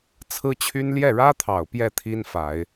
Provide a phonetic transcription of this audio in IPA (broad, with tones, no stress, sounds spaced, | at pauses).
t͡sʰ ɹ̩˥ t͡ɕʰ y˥ n l j ɛ˥˩ ɻ ä˥ t̪ʰ ɑ˨˩ ʊ̯ p j ɛ˥˩ t̪ʰ i˥ n f a˨˩˦ ɪ̯